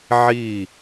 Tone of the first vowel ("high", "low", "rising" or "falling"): falling